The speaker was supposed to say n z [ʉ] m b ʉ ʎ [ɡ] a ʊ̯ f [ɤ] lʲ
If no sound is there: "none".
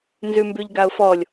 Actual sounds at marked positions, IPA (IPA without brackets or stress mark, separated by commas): ʉ, ɡ, ɔ